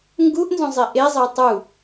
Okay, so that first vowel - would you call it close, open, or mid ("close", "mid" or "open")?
close